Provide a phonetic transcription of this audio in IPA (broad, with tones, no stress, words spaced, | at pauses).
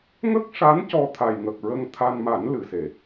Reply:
ŋə˦˥k̚ʂa˧˥n cɔ˧t̪ʰa˨˩jŋə˨˩k̚ɹə˧ŋ t̪ʰa˧nma˨˩˦n lɨ˨˩˨se˨˩˨